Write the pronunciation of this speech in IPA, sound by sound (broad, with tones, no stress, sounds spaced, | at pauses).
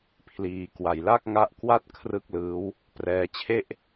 pʰ l iː˨˩ k w a˨˩ j l a˥˩ k̚ ŋ a˦˥ ʔ k w a˥˩ t̚ kʰ r ɯ˥˩ k̚ l ɯː˦˥ w | p r ɛː˧ t͡ɕʰ e˥˩ ʔ